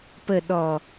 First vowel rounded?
no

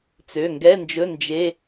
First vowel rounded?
yes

